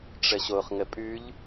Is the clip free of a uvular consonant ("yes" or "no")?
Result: no